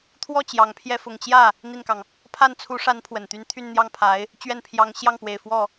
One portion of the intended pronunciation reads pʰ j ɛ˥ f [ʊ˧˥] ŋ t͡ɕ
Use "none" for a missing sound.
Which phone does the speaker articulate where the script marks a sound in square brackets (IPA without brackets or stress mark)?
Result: ʊ˨˩